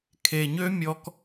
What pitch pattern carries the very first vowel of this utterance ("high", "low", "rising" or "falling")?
low